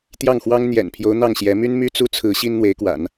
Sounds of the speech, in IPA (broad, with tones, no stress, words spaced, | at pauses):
t̪jɑ˥˩ŋxwɑ˥ŋ n̪jɛ̰˨˩npʰjo˧˥ʊ̯ n̪ɑ˥˩ŋɕjɛ˧˥ my˥nmy˥t͡su˥t͡sʰɹ̩˧˥ ɕi˥nn̪we˧˥ɪ̯kwa̰˨˩˦n